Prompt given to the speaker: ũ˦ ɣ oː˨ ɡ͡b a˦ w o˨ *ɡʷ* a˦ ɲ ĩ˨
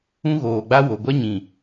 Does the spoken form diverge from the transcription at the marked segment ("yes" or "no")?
no